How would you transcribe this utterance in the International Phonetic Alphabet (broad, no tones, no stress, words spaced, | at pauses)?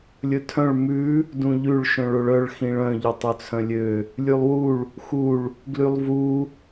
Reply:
lʲɵtʰœ̃ɭ mʉ | dũʎʉɭ ʃœ̃ɭoɭœɭ xĩɭœ̃ ʎɵtˤɵt͡sʰœ̃lʲø | lʲʉlˠwuɭ | xuɭ | ɡlylˠvu